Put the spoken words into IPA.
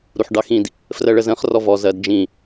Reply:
ɾ u ħ ɖ ɑ x ĩ d | f r ɜ ɭ ə z ə̃ χ r ɔ v ɔ z ɜ d d͡ʒ ĩ

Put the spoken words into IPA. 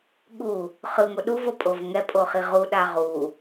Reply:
ɠ u | χ ɯ ŋ o ɗ u v o pʼ o v ŋ ɛ pʼ o χ i ʁ u ɗ a ʁ u

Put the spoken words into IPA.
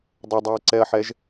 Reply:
dˤ ə dˤ ɛ ɐ̯ ǀ ɛ ɐ̯ ħ ɛ ʒ

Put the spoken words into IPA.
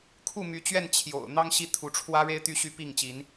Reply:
kʰ u˥˨ m y˨˦ t͡ɕ ɥ ɛ˥˨ n t͡ɕʰ j o̰˨˩ ʊ̯ n̪ ɑ˦ ŋ ɕ i˥˨ t̪ʰ u˨˦ ʈ͡ʂʰ w ä˦ ɻ e˦ ɪ̯ t̪ y˦ ɕ y˥˨ p i˥˨ ŋ t͡ɕ i˨˦ n

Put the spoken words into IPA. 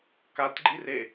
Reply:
k a t ɡ͡ǃ i r e

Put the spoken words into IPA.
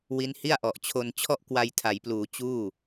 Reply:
w i˦˥ n h i˥˩ a̯ ʔ ɔ˨˩ ʔ t͡ɕʰ o˧ n t͡ɕʰ ɔ˥˩ ʔ k w a˧ j tʰ a˩˦ j p l uː˩˦ t͡ɕ uː˥˩

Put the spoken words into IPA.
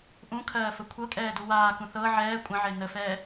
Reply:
ʔ ũ kʰ ɜː f ə kʷʰ ɤ kʼ ɛː d u w aː k ũ θ ɤ ʕ ɛː kʷʼ ə̃ ʕ e n ə f ɛː

